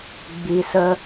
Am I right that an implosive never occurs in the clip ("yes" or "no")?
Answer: yes